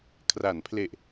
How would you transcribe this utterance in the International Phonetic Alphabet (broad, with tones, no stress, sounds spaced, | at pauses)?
kʰ r a˩˦ n pʰ l e˨˩ ʔ